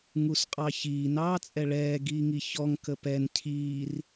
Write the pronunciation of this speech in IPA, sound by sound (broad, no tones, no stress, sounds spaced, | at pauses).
ŋ u s qʼ ɑ ç iː n ɑː t͡sʼ ɛ ɭ ɛː ɡ iː ŋ i ç ɔ ŋ k ə p ɛ n cʰ iː r